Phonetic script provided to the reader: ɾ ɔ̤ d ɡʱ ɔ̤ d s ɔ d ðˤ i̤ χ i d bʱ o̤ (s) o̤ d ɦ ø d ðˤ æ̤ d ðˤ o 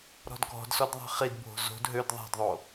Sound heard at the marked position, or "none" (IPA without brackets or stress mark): z